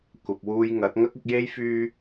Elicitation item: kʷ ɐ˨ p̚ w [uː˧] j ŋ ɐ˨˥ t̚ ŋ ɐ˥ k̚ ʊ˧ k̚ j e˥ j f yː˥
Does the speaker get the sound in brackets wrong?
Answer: no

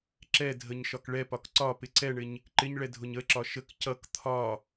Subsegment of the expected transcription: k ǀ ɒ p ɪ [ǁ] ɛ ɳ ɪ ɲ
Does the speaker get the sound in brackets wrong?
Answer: yes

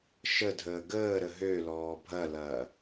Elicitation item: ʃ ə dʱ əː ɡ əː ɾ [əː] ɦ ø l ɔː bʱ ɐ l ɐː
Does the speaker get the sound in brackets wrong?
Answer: yes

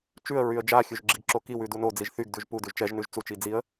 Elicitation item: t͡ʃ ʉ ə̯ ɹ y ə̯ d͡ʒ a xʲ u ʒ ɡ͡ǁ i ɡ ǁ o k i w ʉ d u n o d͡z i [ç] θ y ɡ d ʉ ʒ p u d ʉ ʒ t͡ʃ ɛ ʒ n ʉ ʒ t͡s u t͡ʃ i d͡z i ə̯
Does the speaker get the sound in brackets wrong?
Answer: yes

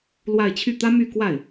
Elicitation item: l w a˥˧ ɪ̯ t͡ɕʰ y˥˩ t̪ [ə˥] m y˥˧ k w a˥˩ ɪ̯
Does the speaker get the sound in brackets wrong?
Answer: yes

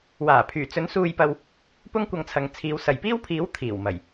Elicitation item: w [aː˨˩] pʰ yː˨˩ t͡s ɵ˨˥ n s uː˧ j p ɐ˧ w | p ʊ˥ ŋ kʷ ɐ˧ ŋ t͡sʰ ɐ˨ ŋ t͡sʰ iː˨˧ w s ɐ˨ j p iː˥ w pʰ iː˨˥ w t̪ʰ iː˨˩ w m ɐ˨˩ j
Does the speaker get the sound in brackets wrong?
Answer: no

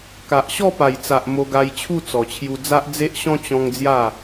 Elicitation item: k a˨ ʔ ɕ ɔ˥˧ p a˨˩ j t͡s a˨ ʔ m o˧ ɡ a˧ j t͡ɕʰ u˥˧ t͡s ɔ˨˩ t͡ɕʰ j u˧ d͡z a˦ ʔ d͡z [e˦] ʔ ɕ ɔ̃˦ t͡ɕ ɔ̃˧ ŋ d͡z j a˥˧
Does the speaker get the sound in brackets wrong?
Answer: no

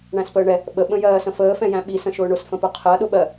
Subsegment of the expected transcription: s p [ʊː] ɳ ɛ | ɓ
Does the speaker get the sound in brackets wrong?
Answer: yes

